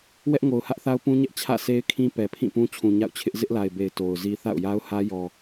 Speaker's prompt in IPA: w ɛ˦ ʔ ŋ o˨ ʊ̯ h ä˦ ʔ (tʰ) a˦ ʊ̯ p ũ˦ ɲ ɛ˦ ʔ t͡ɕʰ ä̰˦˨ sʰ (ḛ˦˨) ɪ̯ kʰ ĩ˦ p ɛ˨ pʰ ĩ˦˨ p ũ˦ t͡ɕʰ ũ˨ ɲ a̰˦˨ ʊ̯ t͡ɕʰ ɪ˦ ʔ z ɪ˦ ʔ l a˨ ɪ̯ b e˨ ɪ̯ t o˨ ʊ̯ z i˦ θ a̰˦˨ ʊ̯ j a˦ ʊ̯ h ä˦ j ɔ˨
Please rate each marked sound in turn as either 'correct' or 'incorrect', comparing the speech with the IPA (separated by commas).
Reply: incorrect, incorrect